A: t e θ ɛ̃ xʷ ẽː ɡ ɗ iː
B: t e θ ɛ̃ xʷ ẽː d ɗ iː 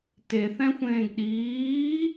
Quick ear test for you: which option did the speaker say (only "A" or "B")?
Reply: A